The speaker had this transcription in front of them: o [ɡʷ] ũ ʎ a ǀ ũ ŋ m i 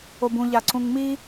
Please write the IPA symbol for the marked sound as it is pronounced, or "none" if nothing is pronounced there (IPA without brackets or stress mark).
b